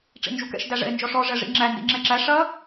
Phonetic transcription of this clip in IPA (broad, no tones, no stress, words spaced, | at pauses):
ʈ͡ʂḭnd͡ʒukɛ̰ʃ dæʐɛ̰e̯nd͡ʒɔʂɔ ʐɛʐḭŋ͡ǁæ ndḭŋ͡ǁɛǁæ ʂɐ